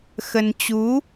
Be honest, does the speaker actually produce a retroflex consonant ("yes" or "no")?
no